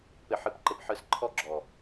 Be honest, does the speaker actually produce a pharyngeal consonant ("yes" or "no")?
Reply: yes